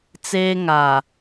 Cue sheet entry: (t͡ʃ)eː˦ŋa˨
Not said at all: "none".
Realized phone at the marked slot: t͡s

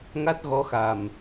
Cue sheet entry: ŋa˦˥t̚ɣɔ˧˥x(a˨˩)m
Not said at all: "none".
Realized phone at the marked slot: a˨˩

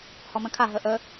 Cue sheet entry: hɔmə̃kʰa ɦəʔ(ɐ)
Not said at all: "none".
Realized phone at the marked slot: ə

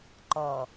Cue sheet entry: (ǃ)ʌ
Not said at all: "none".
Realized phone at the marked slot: ǃ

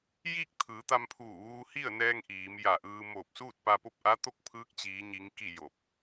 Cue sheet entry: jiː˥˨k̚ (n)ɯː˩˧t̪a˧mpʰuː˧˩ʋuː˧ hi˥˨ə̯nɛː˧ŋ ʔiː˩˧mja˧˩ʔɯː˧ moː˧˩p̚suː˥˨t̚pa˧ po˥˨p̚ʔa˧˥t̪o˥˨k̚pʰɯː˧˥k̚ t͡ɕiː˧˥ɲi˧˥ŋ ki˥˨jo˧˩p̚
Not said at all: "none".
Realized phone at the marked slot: t̪ʰ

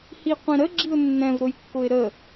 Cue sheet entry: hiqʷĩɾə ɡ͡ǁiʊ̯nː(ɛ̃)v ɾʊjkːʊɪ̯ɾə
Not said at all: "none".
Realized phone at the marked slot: ɛ̃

